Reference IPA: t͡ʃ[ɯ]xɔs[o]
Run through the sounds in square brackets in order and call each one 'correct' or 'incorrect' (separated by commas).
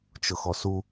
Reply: incorrect, incorrect